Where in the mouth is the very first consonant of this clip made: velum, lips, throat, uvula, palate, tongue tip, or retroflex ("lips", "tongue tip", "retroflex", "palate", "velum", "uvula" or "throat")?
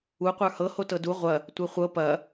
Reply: uvula